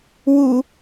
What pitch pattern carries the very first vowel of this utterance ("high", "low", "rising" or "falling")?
low